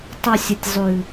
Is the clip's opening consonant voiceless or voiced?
voiceless